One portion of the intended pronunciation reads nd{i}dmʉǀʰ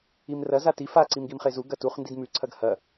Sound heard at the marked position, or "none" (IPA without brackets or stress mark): i